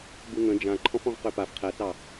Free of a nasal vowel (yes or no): no